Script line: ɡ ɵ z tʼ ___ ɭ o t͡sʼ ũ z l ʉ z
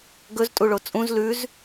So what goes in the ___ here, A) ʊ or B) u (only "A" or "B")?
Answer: B